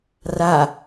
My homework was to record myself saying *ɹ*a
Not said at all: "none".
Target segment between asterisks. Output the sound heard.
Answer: r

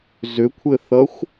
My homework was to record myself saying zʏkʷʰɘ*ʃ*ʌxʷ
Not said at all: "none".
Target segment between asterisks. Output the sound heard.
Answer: θ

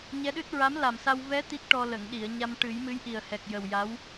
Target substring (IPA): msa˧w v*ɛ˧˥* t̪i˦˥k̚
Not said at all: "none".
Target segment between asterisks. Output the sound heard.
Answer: ɛ˧˥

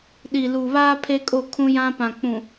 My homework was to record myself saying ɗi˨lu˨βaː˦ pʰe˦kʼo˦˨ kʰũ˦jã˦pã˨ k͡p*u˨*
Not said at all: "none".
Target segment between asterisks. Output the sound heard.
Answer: ũ˨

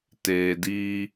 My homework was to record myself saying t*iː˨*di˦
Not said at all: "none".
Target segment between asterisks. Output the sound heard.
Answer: eː˨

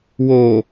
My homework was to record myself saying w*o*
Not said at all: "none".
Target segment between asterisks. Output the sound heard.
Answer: o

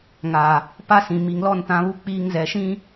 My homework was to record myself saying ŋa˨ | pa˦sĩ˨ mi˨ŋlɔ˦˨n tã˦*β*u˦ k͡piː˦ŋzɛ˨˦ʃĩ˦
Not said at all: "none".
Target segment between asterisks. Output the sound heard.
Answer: β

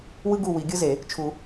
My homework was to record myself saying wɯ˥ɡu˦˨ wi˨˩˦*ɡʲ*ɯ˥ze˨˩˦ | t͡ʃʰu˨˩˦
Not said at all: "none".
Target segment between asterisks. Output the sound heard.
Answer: ɡʲ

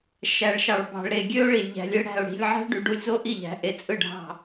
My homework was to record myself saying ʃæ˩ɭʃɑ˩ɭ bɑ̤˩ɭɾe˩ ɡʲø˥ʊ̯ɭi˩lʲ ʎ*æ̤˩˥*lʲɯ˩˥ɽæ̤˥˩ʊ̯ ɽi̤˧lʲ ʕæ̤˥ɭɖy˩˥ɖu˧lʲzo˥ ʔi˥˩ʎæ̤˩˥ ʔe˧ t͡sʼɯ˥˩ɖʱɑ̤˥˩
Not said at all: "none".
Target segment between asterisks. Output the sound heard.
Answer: æ̤˩˥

